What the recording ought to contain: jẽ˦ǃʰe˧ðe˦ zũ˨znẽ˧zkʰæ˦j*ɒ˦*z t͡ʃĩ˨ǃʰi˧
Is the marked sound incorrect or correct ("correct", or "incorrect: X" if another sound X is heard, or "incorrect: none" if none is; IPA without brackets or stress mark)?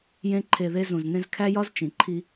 correct